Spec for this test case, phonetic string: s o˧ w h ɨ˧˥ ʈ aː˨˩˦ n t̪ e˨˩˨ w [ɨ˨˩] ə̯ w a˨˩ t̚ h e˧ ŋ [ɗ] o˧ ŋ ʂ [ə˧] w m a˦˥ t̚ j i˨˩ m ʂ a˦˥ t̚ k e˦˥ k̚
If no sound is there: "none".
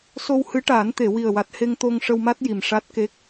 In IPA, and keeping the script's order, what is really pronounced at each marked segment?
i˨˩, t̪, ə˧

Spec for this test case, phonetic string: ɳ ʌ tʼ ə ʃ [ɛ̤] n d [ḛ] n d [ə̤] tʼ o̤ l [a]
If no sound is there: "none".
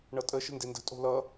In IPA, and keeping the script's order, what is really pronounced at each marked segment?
ə̤, e, ə̤, ʌ

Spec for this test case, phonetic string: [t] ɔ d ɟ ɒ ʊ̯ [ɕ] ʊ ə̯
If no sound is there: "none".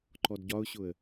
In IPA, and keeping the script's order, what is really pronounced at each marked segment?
ǃ, ɕ

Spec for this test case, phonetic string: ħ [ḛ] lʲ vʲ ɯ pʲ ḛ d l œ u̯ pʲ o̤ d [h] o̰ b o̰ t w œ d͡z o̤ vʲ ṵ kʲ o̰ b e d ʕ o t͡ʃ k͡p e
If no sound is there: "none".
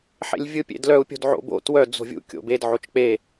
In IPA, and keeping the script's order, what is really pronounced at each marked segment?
ḛ, ʕ

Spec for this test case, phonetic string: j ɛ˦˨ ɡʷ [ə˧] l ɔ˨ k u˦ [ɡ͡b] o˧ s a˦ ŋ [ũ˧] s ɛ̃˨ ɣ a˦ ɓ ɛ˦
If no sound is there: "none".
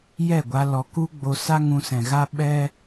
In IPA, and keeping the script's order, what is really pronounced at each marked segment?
a˧, ɡ͡b, ũ˧

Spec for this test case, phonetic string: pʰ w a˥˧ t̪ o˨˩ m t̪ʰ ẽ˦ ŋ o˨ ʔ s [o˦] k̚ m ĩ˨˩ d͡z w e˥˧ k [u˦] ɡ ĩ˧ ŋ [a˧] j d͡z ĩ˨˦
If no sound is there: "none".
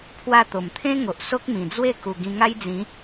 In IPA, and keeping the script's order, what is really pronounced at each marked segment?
o˦, u˨˩, a˦

